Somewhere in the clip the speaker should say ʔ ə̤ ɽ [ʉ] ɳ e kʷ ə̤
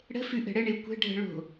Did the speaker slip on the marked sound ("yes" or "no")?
yes